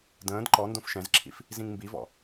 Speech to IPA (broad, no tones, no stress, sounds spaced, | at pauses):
d ə̃ː d ǃ ɔ n d õ f ʃ ɛ̃ z ǁʰ ḭ f | z ĩ ŋ m b i v ɔ̰